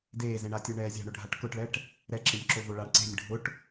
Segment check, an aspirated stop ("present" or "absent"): absent